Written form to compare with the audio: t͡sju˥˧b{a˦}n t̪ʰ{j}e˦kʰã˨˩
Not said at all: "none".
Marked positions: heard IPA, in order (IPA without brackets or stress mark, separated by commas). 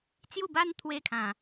a˦, w